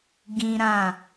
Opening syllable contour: high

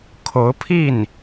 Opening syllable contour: rising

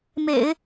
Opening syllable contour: low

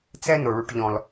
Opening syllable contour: high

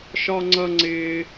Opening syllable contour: high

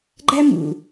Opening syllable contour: high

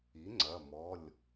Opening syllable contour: rising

